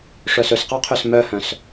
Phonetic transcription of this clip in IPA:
ʂ œ s ɵ s q ɑ qʰ ø s m œ h œ̃ s

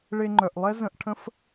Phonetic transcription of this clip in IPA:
ɭ e˧ ŋ͡ǃ œ˩ ʔ lˠ ɛ˥ z ə̃˧ ʔ ʈʰ ə̃˥ f

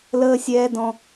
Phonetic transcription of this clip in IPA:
l əː˦ sʲ ɛː˦ d ɔ̃˦

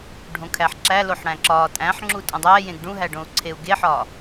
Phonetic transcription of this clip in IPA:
ɖʱ õ kʰ æ ħ ǁ æ l o ħ ɽ æ̃ ǁ ɒː tʼ æ̃ ħ ŋ͡ǁ u tʼ õ dˤ æː j ẽ ɡ ɖ ũ ɦ æ ɖ õ u̯ ǀʰ e u̯ ɡ e ħ ɒː

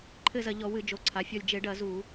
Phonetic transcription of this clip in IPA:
ǃʰ ɘ˦˨ z ɐ˧˩˧ ʎ ɔ˧˩˧ w ɨ˧˩˧ d͡ʒ o˩˧˩ ǀʰ a˩˧˩ fʲ ɔ˦˨ lʲ d͡ʒ e˧˩˧ ɖ ɐ˧˩˧ z u˧˩˧

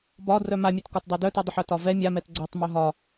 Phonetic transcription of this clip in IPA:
b ɒ d r œ m a mʲ ɛ t k ɒ t dˤ e d œ t e dˤ ʏ ħ œ t ɒ v ɛ mʲ a m ɛ t ɡ͡ǀ œ tˤ m œ ɦ ɒ

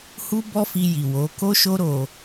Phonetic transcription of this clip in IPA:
h u˦ b ɔ˦ f i˧ j i˨ w o˨˦ k o˦ ʃ o˦ ɾ o˧

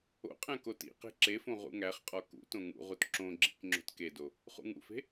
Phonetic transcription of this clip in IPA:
o̰ qʼ æ̃ k o t ḭ q e̤ ǁ e f õ ʁ ṵ ŋ æ χ qʼ ɒ k ṵ t õ ŋ ṵ ʁ u t ǁ õ ɡ͡ǁ ḭ k ŋ͡ǁ o̤ t k e d o | χ ṵ ŋ ṵ f e̤

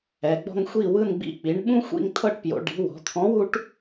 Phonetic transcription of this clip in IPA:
ɛ˩˧ ɡ͡b ɔ̤˦ ŋ xʷ i˦˨ w ɯ˦˨ n ɡ͡b ḭ˦˨ k͡p i˩˧ ɳ ɓ ũ˦ xʷ ḭ˦˨ ŋ t̪ʰ ɤ˦˨ ʈ p j o̰˩˧ ɖ i̤˨˥ w ɔ̤˩˧ t̪ʰ ɔ̃˨˥ w u˦ ʈ

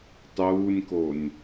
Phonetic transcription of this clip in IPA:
tˤ uː nʲ k o nʲ

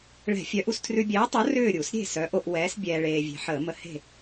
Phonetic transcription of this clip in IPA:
ɭ ɛ̤˧˩˧ fʲ œ˨˥ ʔ u˧ s tʰ r ʉ˧ bʲ ɛː˨˥ tˤ o˨˥ r ʏː˥˨ ɾʲ u˧˩˧ s ɾʲ e̤˥˨ s œ˨˥ ʔ o˧ ʔ w ɛː˨˥ s bʲ ɛː˧ ɭ eː˧ vʲ e̤˧ ħ əː˧˩˧ m ə˧˩˧ h e̤˥˨

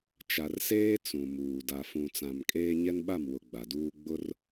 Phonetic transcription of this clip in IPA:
t͡ʃ a˨ r s eː˦ t͡s ũ˨ m uː˨ d a˨ f ũ˨ t͡s ã˨ m kʼ eː˦ ɲ ɛ˦ n ɓ a˦˨ m w ʊ˨ ɡ͡b a˨ d uː˦ ɡ͡b ʊ˦ r

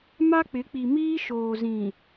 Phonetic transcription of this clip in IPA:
m a˦ k͡p ɪ˨˦ k͡p i˨ m iː˦ ʃ oː˨ z ĩ˨

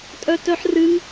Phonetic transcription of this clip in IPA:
tʼ œ t œ ħ r ɨ ŋ

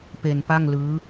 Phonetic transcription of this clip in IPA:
p e˧ n p a˥˩ ŋ l ɯː˦˥

